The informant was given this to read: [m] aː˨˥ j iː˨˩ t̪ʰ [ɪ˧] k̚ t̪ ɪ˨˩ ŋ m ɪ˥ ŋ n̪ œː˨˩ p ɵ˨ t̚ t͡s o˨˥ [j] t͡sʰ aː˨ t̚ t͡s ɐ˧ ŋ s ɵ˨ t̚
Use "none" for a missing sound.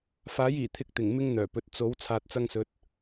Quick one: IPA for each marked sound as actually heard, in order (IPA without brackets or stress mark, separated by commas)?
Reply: f, ɪ˧, w